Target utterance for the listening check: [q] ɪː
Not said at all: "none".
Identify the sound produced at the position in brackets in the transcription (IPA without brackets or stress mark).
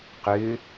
q